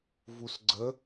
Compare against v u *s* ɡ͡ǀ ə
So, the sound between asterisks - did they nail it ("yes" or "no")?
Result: yes